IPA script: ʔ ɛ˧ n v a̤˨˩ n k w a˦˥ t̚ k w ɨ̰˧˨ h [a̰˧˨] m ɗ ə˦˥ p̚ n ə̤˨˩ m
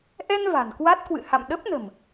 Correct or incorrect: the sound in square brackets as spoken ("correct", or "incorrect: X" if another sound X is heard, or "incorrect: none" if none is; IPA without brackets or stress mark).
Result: correct